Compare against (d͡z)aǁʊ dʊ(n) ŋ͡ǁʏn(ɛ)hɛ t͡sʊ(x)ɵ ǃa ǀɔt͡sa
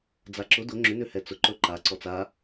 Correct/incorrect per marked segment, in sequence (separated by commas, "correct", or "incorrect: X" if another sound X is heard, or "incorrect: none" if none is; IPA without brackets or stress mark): correct, incorrect: none, incorrect: ʏ, incorrect: ǃ